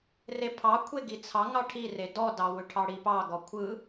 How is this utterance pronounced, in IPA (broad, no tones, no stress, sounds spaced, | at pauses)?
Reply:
r e pʰ ɑ kʷʰ e ɡ i t͡sʰ ɑ ŋ ɑ ʈʰ i r e d ɔ d ɑ w ʏ ʈʰ ɑ ɽ i p ɑ ɡ ɔ kʷʰ ɯ